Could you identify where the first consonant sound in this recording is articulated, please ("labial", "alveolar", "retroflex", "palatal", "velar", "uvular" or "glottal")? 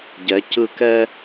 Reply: palatal